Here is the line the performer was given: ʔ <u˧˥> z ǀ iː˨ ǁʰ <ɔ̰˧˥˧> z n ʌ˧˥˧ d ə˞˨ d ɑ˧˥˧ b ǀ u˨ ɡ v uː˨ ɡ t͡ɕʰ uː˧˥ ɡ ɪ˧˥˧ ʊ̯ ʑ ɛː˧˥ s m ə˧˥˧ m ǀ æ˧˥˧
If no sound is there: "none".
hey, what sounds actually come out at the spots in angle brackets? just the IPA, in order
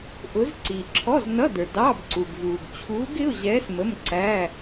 ʊ˧˥, ɔ˧˥˧

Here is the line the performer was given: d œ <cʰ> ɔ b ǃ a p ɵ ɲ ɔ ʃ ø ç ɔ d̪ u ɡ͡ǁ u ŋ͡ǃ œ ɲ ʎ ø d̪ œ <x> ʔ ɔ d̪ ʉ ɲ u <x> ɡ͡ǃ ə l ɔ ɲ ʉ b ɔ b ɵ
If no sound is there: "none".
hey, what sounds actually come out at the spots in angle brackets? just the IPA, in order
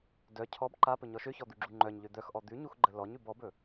cʰ, x, x

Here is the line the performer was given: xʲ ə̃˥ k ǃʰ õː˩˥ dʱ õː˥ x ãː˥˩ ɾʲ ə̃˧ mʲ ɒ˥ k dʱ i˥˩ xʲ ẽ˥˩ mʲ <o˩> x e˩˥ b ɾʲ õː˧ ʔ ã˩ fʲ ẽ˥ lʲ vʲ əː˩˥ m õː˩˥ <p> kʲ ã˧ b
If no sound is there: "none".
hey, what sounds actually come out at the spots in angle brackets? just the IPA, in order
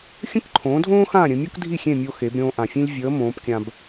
o˧, p

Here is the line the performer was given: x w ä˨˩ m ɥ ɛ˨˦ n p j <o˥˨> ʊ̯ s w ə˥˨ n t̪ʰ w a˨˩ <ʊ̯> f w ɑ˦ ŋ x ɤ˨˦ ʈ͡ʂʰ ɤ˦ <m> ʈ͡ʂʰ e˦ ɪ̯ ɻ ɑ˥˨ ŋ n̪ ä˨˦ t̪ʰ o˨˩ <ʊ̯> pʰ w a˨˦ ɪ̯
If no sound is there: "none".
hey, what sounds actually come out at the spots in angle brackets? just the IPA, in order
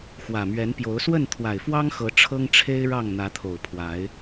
o˨˦, ɪ̯, ŋ, ʊ̯

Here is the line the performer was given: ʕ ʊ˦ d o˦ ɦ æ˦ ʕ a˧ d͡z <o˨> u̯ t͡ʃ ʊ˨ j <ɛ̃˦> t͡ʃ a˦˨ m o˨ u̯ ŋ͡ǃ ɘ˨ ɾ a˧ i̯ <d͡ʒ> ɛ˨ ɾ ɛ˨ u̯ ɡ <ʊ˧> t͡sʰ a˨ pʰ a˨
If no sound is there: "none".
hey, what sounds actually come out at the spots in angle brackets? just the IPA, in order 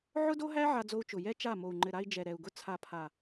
o˧, ɛ˦, d͡ʒ, ʊ˧

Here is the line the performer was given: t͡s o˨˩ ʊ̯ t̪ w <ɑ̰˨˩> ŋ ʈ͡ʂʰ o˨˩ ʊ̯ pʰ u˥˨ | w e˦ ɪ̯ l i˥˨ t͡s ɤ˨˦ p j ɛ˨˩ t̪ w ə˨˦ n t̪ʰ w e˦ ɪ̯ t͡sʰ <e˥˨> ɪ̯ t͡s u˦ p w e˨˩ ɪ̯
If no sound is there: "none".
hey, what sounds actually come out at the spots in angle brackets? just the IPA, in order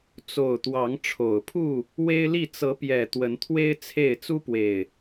ɑ˨˦, e˥˨

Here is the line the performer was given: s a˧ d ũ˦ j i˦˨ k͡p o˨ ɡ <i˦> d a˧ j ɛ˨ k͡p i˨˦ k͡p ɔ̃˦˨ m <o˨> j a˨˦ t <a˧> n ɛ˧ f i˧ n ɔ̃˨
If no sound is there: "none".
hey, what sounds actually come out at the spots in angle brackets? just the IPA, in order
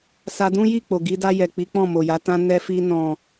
i˧, o˨, ã˧

